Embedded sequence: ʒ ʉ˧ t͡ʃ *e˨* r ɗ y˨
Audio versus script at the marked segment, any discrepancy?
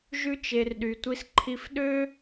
no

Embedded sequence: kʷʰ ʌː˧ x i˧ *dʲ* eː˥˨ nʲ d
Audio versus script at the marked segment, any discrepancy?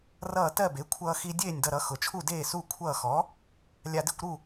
no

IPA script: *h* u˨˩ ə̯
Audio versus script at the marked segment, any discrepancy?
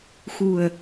yes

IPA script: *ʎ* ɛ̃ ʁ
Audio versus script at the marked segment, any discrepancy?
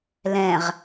yes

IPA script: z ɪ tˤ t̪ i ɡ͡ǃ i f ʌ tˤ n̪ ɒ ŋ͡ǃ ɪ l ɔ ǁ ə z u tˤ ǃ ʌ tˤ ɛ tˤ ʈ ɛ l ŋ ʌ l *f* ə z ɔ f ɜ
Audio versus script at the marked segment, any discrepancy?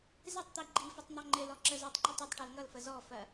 no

